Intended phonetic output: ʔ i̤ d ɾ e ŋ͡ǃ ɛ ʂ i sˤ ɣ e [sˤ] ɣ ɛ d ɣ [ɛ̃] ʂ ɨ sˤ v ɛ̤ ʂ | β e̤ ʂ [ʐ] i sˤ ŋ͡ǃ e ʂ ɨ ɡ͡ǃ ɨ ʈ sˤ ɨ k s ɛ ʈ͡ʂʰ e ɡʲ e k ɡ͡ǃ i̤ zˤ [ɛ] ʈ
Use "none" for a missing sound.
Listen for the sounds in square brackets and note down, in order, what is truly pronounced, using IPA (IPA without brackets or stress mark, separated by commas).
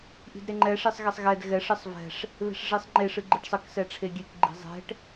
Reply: sˤ, ɛ, ʐ, ɛ̤